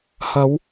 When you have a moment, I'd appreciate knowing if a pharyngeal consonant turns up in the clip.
no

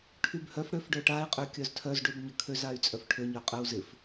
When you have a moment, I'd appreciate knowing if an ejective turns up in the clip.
yes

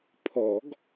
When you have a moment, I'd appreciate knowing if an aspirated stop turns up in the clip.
yes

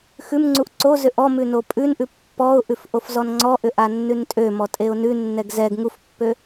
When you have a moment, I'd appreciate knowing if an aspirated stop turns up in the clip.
no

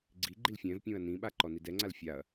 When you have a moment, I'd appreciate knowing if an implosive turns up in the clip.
yes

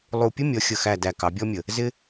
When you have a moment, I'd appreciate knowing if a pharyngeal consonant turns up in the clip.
no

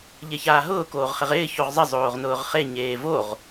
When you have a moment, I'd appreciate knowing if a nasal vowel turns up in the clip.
no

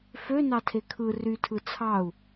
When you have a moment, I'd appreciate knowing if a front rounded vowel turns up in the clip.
yes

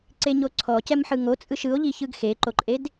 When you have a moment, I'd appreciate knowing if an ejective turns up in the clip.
yes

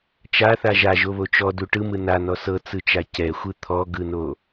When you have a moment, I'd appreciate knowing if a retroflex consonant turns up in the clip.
yes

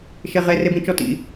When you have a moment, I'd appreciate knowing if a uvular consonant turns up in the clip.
yes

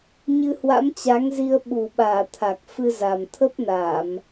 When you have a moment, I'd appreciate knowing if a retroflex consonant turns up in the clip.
no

